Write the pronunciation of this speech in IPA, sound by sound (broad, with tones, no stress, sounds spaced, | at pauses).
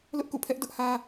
l ʊ˦ ʔ k ṵ˦˨ pʰ ɛ˦ ʔ d ʊ˦ ʔ h ä˦